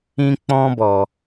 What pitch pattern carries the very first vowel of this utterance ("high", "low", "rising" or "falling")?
high